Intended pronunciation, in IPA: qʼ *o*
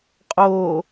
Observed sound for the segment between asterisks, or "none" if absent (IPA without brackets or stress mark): o